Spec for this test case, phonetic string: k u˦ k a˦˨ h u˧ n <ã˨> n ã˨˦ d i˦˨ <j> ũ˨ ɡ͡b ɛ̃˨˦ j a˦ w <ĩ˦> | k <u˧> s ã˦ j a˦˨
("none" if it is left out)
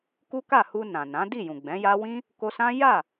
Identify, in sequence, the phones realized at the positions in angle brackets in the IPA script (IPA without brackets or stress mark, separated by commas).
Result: ã˨, j, ĩ˦, o˧